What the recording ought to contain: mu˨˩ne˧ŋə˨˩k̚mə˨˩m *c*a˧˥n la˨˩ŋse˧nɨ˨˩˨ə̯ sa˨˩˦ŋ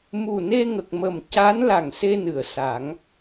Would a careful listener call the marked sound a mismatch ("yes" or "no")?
no